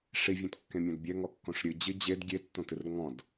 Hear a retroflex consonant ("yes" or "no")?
yes